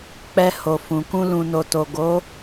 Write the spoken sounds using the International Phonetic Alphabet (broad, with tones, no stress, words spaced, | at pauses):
k͡pɛ˧ho˨ fũ˨kũ˧ lũ˨no˨to˨ ɡo˨˦